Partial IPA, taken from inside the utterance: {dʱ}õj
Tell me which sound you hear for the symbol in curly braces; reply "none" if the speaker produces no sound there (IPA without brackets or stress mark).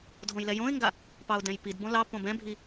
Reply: dʱ